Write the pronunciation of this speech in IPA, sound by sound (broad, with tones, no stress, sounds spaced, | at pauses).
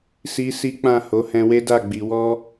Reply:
s i˦ s i˦ k͡p ã˦˨ h o˨˦ h ɛ̃˧ w e˦ d a˦˨ ɡ͡b i˨ w ɔ˧